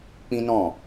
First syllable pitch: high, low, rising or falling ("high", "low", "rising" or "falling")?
high